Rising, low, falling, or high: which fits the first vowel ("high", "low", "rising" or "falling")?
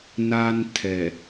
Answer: low